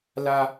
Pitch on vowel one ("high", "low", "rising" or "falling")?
high